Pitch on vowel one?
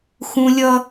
high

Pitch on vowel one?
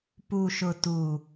low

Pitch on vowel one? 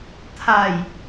low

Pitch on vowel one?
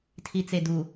low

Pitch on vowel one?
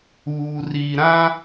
low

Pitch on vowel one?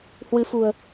rising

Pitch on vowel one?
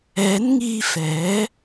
rising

